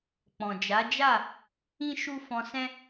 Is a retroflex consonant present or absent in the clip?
absent